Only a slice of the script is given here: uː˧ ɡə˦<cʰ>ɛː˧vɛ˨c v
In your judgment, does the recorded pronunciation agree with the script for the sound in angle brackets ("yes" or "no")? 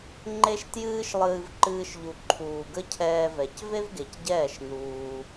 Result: yes